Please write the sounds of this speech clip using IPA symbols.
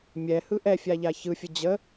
mʲɛhɯ ʔɛfʲaʎa çɯfʲə d͡ʑə

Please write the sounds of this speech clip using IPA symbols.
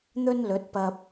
n̪ɵ˥nlɵ˨˥t̚pɐ˧p̚

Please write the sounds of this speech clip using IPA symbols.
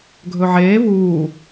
ɡʱɵʕeː vuː

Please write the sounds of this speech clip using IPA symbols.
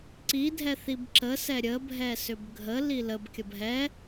ǀidʱɛ θibǁəsɛ ɾʲəbʱɛ sʏbɡʱəli ləbkʲəb ɦɛ

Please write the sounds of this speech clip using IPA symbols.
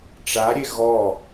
ʈ͡ʂaɾʲe ɣɔ

